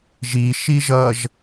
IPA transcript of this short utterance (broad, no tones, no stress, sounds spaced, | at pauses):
ʒ i ʃ i ʒ ʌ ʒ